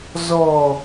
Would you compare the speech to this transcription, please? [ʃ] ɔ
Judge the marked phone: incorrect: z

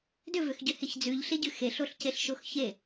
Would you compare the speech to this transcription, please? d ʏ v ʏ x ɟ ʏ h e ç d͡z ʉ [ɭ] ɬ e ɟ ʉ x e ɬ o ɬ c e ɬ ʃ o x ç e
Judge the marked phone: incorrect: ʎ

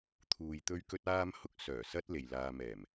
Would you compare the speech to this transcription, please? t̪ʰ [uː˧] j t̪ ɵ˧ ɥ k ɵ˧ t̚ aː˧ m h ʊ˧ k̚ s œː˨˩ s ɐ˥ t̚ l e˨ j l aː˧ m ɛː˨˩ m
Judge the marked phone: incorrect: uː˨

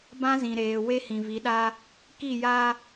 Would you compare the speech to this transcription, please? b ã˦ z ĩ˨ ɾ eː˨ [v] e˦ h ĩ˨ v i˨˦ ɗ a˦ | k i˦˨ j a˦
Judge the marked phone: incorrect: w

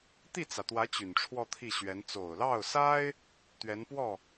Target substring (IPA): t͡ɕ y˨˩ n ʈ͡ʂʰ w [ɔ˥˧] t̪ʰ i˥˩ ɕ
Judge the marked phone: correct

